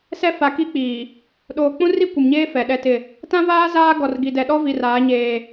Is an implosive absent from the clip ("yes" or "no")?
no